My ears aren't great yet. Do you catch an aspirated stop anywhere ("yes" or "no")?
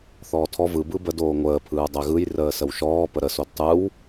yes